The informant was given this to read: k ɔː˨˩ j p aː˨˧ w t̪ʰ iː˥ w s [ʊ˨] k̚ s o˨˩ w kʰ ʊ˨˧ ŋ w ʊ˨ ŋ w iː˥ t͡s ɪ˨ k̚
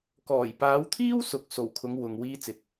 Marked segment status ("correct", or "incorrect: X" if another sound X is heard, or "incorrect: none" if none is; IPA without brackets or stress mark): correct